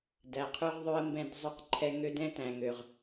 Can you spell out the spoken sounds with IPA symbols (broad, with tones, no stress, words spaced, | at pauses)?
dæ˨qʰʉ˧ʁðˤʉ˧ə̯ mbɛ̃˧d zˤʉ˧qǃʰɛ˧ ŋø˦d ɛ̃˦tæ̃˨ŋø˨ʁ